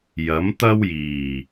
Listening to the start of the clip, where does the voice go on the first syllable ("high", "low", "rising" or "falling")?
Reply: rising